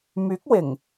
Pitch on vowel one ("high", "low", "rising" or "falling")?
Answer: rising